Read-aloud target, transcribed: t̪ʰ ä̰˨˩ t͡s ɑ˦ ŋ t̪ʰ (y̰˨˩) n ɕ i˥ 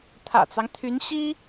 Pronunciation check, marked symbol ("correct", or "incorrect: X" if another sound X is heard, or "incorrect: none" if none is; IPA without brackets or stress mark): incorrect: y˧˥